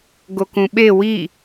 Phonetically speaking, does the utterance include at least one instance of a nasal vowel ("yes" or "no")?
yes